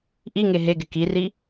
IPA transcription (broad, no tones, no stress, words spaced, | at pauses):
ʔiŋe ɦeɡɪ kiri